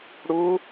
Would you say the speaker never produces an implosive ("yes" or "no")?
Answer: yes